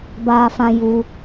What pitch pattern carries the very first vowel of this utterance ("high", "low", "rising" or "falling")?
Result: high